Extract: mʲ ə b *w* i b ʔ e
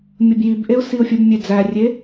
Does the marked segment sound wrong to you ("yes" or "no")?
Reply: yes